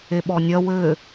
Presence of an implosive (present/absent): present